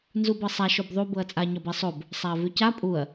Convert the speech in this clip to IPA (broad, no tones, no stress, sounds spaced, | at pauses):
n z u b ɤ sˤ a ʃ o b ðˤ u b ɤ ɐ̯ t͡sʼ a ɲ ɒ b ɛ sˤ o b | sˤ a ɐ̯ v ʉ c a pʼ u ɐ̯